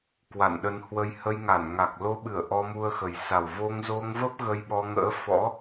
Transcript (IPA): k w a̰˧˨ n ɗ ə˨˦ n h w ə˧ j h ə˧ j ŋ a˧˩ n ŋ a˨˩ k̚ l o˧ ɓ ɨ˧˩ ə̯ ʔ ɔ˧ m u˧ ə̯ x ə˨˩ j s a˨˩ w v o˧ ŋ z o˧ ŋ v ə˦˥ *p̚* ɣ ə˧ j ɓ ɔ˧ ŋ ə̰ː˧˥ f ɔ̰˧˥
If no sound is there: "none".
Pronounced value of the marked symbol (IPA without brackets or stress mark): p̚